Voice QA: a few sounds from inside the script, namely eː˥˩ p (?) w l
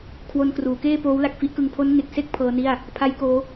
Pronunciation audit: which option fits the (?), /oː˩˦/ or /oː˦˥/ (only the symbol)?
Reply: oː˦˥